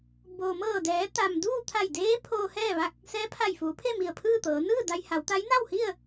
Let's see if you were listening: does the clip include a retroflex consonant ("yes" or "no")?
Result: no